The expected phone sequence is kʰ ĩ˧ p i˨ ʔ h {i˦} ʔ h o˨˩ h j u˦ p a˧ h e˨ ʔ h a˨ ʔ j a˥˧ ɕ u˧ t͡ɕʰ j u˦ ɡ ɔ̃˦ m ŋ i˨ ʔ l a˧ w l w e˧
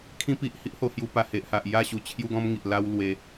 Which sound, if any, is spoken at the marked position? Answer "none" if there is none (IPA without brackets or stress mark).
i˦